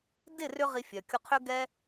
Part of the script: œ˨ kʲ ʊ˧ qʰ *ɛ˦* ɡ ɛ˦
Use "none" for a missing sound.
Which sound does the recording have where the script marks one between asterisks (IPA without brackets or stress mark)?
ʏ˦